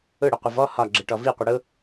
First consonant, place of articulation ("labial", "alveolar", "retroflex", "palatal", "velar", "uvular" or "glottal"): retroflex